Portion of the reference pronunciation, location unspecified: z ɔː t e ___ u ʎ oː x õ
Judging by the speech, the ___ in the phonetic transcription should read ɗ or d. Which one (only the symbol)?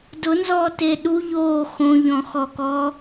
ɗ